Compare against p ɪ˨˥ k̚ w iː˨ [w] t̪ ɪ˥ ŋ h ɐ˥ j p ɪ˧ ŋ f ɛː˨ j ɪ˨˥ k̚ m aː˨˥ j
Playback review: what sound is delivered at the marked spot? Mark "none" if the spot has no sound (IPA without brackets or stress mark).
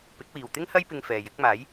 w